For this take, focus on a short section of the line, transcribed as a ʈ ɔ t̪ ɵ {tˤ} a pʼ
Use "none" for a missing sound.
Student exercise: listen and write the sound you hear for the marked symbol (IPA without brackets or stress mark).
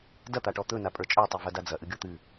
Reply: n